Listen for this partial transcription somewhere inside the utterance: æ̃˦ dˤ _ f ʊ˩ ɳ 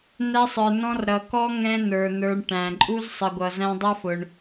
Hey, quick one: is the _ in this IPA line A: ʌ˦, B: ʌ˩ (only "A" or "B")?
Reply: A